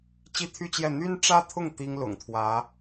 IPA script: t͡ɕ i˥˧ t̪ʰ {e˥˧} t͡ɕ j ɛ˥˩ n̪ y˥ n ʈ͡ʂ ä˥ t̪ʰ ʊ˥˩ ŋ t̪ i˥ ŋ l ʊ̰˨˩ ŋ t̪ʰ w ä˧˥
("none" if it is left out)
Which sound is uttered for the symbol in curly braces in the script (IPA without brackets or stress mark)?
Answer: y˥˧